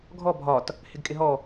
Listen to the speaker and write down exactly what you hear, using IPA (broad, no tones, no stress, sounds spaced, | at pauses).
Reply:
ɡʱ ɔ bʱ ɒ t | h ɪ ɡ kʼ ɪ ɦ ɔ